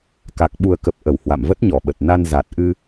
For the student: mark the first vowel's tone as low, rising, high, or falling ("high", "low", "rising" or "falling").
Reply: low